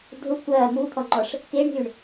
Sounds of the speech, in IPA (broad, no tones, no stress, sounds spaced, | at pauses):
dʱ ʊ kʷ ɐː m u t̪ʰ ɔ ŋ͡ǃ ɔ ʂ | k e ɳ ɦ y ɳ